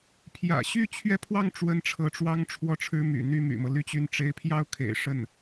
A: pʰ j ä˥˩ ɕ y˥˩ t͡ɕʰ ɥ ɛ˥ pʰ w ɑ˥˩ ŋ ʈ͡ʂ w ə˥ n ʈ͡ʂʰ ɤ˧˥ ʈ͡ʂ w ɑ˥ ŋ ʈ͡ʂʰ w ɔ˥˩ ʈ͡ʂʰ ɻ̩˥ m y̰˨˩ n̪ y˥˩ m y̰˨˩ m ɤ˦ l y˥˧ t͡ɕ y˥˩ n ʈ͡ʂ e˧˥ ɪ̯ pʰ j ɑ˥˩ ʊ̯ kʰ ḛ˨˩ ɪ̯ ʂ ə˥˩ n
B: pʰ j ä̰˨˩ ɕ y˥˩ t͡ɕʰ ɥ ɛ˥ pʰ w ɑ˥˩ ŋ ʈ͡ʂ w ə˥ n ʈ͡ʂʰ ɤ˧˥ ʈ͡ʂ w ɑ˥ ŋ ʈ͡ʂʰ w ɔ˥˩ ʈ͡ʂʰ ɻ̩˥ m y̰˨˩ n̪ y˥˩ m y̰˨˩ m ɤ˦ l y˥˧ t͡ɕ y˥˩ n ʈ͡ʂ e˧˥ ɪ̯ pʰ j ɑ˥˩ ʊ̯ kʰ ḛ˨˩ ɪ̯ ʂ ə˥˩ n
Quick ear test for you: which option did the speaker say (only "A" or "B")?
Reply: B